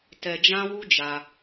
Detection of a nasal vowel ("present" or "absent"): present